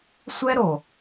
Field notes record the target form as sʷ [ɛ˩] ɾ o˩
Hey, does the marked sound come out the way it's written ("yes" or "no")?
no